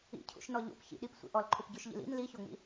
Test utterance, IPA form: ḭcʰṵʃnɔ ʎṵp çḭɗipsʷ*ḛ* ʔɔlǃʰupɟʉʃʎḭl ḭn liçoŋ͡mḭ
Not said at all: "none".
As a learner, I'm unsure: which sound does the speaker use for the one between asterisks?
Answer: ḭ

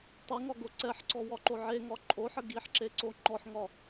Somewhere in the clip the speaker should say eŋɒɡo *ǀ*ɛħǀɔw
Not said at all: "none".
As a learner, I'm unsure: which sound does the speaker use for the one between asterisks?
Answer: ǀ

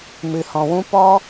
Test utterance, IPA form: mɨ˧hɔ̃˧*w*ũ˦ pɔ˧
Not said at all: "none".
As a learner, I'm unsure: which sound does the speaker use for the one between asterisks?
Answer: w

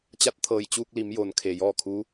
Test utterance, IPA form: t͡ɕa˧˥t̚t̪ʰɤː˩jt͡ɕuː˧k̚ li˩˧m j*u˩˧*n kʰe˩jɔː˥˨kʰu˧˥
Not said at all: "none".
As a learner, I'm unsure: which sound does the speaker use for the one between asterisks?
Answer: o˩˧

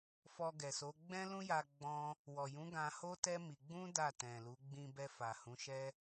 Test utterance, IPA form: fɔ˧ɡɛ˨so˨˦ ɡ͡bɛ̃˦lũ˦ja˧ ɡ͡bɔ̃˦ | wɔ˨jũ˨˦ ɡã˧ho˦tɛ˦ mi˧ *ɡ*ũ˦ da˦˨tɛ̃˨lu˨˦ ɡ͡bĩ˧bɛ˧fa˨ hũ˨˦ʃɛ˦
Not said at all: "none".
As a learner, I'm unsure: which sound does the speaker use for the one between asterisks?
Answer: ɡ͡b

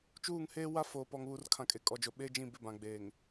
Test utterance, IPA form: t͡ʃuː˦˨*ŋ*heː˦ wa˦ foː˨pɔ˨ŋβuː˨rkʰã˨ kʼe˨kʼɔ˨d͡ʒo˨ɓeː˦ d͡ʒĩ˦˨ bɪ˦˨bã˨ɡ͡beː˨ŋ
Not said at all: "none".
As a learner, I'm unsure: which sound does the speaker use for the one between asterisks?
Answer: ŋ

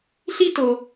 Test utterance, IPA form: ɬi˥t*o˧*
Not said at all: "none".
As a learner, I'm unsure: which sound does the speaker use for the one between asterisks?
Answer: o˧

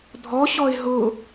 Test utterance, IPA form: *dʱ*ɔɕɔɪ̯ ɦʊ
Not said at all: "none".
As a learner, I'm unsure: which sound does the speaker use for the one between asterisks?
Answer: dʱ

